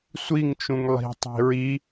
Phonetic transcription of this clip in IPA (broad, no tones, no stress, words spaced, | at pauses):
sʷiŋt͡ʃũŋ lˠi̤tˤi̤ ɹi